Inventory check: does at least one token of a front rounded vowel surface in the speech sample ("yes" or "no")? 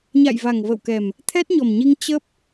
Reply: no